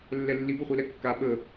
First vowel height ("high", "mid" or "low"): mid